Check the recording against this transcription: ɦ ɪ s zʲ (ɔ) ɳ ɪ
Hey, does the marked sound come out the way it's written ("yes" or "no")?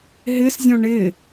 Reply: no